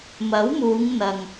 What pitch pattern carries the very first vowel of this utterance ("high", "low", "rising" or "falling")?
rising